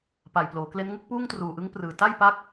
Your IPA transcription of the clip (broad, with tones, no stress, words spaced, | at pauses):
pa˨˩jploː˩˦kle˦˥nŋɯ˥˩k̚ puː˥˩ŋtruː˨˩ʔɯ˦˥ŋ prɯː˨˩ ta˥˩j pa˦˥k̚